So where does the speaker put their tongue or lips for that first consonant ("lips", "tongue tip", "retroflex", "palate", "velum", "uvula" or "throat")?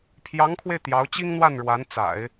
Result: lips